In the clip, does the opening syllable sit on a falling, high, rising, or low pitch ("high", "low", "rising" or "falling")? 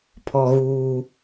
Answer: low